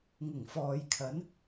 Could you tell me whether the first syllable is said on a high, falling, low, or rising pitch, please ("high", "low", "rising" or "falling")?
low